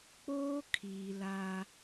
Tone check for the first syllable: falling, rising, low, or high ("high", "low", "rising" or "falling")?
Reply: high